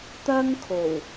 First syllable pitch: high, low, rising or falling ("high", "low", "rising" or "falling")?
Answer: high